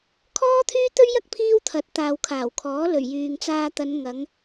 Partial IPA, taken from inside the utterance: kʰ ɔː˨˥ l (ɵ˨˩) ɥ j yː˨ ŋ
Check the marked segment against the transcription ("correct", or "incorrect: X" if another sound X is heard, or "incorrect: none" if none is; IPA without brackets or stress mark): correct